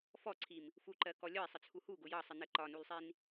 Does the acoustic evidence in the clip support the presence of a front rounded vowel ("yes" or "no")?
no